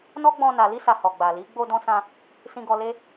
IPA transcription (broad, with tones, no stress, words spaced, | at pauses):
nɔ˦ɡ͡bɔ̃˧ na˨li˧sa˨ hɔ˨ɡ͡ba˨ li˨˦ ɡ͡bo˧dɔ̃˧sã˧ | sĩ˧ɡɔ˧le˦